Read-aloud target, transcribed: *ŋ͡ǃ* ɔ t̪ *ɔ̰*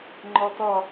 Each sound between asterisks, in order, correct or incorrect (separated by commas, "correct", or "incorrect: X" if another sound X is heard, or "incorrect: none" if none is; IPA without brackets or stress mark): correct, incorrect: ɔ